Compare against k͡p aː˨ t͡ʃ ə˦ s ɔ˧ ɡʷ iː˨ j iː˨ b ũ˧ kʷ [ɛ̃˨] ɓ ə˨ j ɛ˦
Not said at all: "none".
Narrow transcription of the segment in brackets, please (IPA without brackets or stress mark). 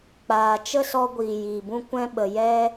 ɛ̃˧